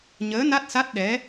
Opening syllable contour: rising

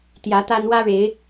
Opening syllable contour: rising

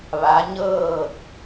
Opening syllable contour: rising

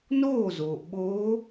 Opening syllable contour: falling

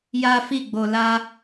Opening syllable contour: high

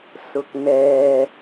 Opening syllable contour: low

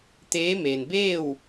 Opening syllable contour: rising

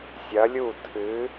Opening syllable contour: rising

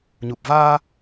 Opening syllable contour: low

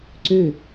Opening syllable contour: falling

